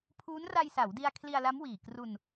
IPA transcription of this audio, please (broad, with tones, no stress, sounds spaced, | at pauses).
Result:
pʰ uː˦˥ n r a˧ j s a˩˦ w d i˧ a̯ kʰ l i˧ a̯ l a˦˥ m w iː˨˩ k r u˧ n